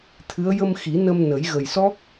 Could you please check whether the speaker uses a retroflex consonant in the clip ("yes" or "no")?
no